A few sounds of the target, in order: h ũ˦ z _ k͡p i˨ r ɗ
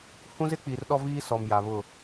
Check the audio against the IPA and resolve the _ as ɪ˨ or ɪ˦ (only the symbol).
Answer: ɪ˦